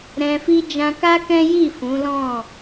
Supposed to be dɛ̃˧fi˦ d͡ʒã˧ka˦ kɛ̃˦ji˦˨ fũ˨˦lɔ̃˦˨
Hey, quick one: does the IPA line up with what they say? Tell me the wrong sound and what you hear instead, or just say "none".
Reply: d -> ɾ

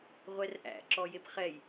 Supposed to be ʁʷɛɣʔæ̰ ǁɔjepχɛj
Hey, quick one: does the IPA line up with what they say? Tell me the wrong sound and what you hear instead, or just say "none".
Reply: ɣ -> r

